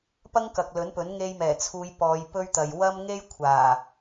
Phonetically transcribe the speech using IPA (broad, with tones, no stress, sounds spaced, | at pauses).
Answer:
p ɐ˥ ŋ k ɐ˨ k̚ l ɵ˨˥ n p ɵ˨˥ n ŋ e˧ j m ɛː˨˩ t͡sʰ uː˨˧ j p ɔː˨˧ j p ɵ˥ ɥ t̪ ɐ˨ j w ɐ˥ m ŋ e˥ j kʷʰ aː˨˩